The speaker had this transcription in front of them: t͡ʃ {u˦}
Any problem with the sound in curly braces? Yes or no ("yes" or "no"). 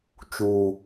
yes